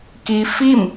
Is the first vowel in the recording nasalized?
no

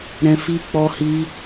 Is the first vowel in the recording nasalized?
yes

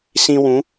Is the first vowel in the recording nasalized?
yes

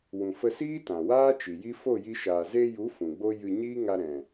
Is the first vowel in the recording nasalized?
yes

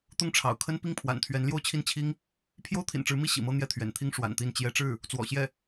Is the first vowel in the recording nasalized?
no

